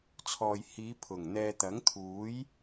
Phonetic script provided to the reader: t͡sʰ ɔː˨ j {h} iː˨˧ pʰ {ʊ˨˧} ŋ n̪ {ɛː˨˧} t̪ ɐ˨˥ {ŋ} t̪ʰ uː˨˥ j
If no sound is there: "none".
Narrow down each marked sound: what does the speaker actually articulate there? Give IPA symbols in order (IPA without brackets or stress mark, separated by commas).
h, ʊ˨˩, ɛː˧, ŋ